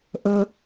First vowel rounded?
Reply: no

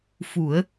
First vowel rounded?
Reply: yes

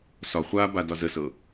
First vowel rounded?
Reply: yes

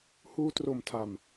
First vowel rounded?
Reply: yes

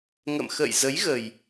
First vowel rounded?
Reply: no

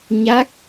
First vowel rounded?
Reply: no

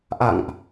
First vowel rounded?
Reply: no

